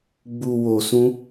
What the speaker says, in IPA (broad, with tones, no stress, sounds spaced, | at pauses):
ɡ͡b u˨ w o˨ s ũ˧